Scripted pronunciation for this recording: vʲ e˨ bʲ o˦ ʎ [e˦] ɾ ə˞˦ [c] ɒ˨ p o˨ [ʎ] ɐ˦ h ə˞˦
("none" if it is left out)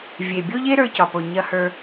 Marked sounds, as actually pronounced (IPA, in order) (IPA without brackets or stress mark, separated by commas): e˦, c, ɲ